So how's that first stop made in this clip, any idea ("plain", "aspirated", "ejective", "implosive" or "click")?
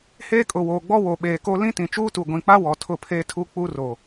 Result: ejective